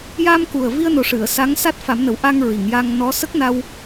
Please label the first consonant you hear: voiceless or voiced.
voiced